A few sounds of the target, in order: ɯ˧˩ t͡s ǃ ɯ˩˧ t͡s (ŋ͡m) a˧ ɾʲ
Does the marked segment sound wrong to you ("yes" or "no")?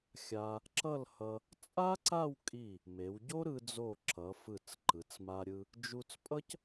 yes